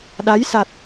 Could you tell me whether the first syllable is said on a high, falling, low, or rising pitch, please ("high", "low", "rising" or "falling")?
rising